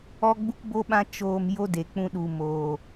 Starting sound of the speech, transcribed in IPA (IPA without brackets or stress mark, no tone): ɔ